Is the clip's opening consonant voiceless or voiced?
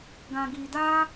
voiced